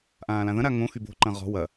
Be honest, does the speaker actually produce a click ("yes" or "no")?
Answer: yes